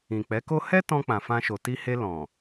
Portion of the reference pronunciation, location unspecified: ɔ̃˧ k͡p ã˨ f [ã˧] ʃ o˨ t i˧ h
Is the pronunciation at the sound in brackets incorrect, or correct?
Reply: correct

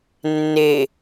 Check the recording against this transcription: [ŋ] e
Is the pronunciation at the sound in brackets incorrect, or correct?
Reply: incorrect: nː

